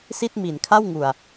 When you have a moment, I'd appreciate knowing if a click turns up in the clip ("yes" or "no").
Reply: no